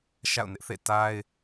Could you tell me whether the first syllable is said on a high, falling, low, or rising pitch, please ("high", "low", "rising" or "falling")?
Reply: falling